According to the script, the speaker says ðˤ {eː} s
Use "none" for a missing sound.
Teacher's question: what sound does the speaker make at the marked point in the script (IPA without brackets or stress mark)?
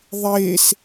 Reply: eː